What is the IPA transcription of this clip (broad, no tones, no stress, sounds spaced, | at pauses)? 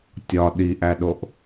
tʲ ɒ ɗ i ʔ æ ɗ o ʔ